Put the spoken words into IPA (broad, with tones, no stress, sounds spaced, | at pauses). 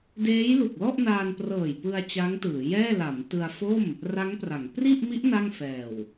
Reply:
d eː˦˥ j l u˨˩ k̚ l ɔ˥˩ ʔ n aː˧ n p r ɤː˨˩ j p ɯ˧ a̯ t͡ɕ a˦˥ ŋ t ɯː˩˦ j ɛː˥˩ l a˩˦ m t ɯ˧ a̯ f o˥˩ m | r a˦˥ ŋ p r a˩˦ ŋ p r i˥˩ ʔ m i˦˥ ʔ n a˥˩ ŋ f ɛː˨˩ w